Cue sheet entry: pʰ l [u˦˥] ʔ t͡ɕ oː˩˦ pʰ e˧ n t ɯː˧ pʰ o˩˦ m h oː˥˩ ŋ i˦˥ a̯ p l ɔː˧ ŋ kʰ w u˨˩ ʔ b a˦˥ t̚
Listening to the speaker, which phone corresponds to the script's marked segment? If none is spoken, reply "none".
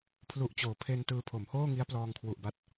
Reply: u˨˩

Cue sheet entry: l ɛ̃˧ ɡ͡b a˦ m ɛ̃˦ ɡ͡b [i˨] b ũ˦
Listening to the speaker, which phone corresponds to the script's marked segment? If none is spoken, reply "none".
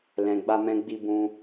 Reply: i˦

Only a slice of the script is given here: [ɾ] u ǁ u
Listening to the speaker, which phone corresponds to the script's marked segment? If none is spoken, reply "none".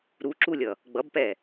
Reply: ɾ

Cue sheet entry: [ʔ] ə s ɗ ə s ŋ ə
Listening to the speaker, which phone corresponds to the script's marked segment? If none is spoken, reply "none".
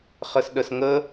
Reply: χ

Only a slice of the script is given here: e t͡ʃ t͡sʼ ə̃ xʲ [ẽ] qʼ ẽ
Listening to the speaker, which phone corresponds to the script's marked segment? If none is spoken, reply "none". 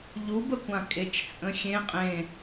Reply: ẽ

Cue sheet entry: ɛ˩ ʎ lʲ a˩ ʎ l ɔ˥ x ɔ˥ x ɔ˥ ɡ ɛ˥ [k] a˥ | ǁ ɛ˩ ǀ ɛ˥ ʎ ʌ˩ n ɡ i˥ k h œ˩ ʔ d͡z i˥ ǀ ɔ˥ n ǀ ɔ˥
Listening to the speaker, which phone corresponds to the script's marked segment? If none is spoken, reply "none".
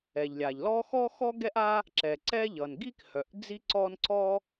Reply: ʔ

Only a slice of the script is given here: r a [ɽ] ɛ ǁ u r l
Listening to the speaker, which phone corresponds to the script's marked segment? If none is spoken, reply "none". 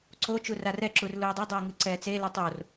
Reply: r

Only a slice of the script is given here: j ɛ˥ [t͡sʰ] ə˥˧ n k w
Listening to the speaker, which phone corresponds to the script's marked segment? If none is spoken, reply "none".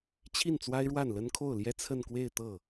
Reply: t͡sʰ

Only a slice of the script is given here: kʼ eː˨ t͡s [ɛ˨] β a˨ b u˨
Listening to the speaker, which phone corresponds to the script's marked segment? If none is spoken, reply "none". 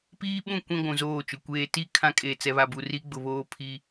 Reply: ɛ˨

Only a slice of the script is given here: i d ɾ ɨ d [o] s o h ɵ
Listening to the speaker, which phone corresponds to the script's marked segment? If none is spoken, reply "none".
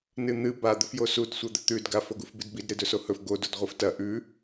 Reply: ɵ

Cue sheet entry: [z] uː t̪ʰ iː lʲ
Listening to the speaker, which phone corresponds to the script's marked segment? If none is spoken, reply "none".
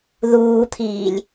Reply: ð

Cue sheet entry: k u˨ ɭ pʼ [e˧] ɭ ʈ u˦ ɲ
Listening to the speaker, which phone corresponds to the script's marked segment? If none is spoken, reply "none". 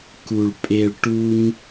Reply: e˧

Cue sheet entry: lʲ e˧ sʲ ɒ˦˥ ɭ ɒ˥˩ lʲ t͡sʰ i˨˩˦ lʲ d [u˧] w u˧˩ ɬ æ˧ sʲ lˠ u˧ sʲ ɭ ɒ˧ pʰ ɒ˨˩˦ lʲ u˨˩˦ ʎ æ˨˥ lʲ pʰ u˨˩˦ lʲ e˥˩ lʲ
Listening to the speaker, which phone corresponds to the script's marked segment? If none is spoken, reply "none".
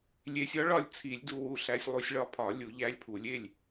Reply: u˧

